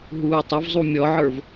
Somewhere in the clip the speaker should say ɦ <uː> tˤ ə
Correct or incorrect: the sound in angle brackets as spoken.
correct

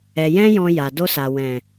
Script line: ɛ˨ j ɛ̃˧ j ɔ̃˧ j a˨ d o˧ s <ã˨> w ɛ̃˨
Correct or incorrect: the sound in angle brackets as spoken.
incorrect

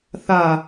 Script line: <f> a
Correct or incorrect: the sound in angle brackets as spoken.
incorrect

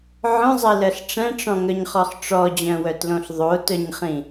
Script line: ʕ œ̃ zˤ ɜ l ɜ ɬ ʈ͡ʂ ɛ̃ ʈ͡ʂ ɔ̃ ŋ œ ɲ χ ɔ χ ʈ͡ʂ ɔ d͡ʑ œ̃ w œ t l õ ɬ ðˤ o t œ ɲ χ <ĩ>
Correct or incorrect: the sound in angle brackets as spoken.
correct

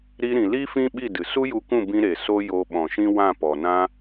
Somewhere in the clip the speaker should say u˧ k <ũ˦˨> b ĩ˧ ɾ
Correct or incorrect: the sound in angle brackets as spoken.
correct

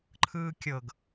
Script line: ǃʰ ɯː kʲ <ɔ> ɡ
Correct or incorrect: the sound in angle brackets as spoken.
incorrect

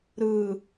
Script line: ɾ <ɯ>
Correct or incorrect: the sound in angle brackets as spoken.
correct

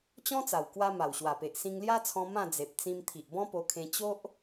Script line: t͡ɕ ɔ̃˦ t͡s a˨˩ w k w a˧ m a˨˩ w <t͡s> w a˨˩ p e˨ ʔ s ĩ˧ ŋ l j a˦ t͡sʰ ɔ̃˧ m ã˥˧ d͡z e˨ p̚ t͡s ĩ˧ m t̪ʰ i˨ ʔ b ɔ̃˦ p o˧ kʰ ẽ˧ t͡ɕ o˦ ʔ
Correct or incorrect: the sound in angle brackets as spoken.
incorrect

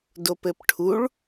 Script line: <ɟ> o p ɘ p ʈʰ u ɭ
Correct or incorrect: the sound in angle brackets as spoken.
incorrect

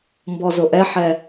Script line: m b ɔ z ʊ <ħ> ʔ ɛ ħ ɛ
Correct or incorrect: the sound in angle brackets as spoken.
incorrect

